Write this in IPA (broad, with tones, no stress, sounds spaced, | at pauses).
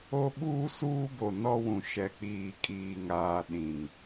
o˦ ɓ uː˦ s uː˦ b o˨ n ɔ˦ w ũ˨ ʃ ɛ˨ k͡p iː˨ kʼ iː˨ ŋ aː˨ ɗ ĩ˨ ŋ